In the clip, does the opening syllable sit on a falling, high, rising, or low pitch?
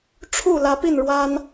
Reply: falling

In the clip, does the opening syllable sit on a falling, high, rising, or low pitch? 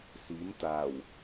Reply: rising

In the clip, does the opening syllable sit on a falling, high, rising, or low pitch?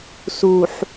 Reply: low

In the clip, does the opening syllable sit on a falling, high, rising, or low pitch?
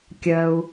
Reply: low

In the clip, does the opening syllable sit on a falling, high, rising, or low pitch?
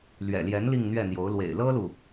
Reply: low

